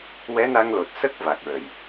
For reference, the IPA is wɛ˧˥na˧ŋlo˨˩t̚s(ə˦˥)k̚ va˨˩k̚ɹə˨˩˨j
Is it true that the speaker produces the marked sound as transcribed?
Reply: yes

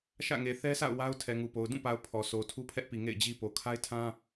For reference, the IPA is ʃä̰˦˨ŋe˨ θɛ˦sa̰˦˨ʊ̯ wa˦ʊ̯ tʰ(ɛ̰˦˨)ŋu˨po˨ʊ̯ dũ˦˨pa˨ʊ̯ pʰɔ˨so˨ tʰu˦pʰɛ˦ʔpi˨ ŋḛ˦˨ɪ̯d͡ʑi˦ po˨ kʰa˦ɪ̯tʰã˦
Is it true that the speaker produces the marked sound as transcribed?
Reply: no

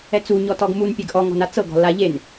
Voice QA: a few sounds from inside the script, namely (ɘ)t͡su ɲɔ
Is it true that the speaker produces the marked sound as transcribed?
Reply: no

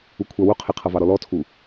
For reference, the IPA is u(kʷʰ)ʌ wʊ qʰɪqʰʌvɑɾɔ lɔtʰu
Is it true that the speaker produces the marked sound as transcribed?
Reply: yes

